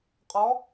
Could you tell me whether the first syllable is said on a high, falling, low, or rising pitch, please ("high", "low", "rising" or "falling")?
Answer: rising